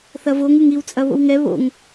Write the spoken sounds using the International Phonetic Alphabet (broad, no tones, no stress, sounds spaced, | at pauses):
θ ɐ v o ŋ ɨ ŋ i w t͡sʼ ɐ β o̰ w ŋ ɛ β o̰ ŋ